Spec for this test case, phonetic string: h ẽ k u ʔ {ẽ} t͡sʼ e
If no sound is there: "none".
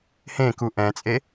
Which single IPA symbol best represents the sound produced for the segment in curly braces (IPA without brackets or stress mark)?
ɛ̃